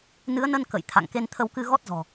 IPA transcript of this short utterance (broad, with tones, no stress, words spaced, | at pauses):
nɨ˨˦ə̯nə˧n kə̰˧˨j t̪ʰa̰˧˨ŋ ke˧nt̪ʰə˧wkɨ˧ ɣɔ˦˥t̚zɔ̤˨˩